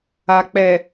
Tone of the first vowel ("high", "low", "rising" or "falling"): low